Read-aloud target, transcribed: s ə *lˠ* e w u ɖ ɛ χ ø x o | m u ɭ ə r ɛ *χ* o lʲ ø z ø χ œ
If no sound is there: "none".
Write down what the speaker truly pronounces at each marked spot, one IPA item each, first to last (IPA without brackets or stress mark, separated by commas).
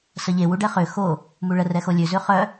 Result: ʎ, x